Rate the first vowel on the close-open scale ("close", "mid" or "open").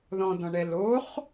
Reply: mid